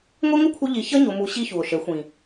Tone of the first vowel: high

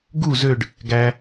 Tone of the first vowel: falling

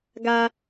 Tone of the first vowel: low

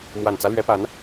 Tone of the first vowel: low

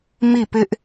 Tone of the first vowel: falling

